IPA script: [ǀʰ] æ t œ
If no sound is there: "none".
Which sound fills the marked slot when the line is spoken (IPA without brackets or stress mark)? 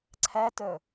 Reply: ǀʰ